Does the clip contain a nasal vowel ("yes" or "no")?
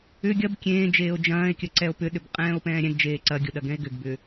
yes